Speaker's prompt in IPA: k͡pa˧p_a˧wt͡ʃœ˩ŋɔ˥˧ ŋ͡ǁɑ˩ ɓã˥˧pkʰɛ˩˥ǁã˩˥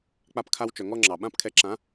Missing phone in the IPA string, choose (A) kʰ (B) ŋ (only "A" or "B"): A